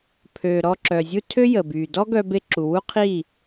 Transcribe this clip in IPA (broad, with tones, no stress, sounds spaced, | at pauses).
pʰ ø˨ ɾ ɔ˧ ǁ œ˨ zʲ u˦ tʰ ø˦ j əː˨ b yː˨ d ɔ˦ ɡ œ˧ b e˧ ǁ u˨ w u˦ qʰ iː˦˨